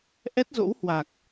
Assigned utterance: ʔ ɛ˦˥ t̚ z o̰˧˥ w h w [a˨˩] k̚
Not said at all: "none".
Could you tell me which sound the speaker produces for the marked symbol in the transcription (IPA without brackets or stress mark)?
a˨˩